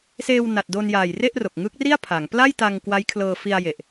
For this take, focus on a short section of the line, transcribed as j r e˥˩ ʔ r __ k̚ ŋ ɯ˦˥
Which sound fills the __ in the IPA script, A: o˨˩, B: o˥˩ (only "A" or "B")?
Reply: A